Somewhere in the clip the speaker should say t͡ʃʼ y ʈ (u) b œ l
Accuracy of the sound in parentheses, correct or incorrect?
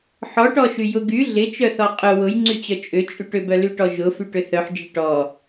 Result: incorrect: ʏ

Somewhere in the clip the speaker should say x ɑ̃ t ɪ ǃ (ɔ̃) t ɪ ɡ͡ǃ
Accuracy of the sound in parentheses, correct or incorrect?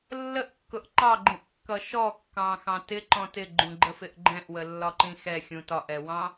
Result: correct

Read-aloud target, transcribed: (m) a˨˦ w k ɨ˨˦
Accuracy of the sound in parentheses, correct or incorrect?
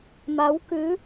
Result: correct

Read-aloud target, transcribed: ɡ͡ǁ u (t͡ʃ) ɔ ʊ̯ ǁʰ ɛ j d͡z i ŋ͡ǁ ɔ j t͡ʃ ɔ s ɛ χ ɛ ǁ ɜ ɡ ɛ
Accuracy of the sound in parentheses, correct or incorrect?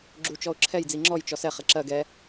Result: correct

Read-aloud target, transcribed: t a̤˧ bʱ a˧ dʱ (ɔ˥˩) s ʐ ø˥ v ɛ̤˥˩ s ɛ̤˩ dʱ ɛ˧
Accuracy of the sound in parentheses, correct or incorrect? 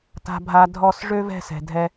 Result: correct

